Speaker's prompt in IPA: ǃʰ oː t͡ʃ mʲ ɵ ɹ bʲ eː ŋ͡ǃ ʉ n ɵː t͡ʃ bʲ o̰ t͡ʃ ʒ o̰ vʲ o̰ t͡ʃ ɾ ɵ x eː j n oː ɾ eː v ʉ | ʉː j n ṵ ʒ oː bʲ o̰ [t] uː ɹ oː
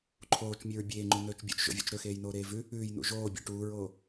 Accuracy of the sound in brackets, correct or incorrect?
incorrect